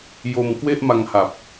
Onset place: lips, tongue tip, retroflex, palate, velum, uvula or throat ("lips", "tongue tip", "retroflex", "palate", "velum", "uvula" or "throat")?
palate